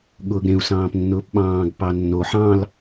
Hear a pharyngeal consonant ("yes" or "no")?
yes